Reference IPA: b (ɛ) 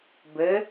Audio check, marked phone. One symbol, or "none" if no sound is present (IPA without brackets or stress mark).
ɘ